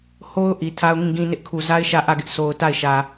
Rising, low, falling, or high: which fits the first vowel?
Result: high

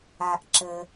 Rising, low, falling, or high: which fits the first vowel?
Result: low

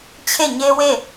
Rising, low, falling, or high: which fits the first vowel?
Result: falling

